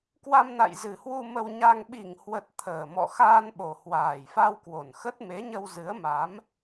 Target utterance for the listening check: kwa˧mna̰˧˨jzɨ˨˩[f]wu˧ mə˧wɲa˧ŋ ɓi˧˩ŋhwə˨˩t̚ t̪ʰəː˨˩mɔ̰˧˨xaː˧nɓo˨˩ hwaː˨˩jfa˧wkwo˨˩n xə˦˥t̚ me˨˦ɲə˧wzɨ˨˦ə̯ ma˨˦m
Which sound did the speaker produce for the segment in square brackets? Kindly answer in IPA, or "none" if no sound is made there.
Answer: h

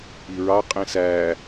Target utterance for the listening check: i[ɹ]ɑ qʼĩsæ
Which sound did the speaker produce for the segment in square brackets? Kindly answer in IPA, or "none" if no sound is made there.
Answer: ɹ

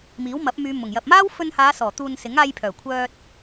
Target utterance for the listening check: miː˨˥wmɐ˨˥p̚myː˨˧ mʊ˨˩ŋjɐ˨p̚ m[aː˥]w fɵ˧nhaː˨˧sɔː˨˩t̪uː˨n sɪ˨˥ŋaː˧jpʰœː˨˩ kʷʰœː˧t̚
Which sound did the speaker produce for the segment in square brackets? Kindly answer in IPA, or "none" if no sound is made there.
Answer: aː˥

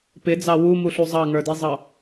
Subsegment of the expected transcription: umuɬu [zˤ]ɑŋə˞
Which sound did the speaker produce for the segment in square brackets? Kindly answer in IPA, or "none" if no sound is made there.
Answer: zˤ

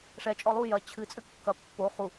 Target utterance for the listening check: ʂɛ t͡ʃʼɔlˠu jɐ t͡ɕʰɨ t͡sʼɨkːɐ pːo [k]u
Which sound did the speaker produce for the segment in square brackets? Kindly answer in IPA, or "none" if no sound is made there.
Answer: χ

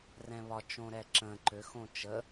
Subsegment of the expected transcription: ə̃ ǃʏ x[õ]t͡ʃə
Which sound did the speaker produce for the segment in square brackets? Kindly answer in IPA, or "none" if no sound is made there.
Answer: õ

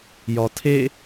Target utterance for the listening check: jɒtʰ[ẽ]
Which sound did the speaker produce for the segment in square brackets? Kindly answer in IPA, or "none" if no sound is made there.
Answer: e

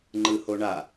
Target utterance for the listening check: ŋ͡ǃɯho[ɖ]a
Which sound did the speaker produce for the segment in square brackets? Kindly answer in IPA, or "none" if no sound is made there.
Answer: ɳ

